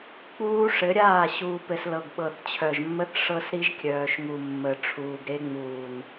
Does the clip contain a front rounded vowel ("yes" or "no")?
yes